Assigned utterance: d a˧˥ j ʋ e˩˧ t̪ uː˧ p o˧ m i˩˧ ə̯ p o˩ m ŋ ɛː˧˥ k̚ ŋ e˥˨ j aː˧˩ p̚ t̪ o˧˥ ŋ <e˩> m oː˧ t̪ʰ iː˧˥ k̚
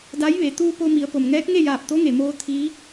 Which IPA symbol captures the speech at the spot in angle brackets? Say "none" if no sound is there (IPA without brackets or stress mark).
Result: e˩